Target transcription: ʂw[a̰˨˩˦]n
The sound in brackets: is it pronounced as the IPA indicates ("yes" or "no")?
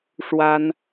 no